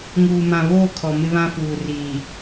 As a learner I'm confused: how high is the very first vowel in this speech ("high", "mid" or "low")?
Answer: high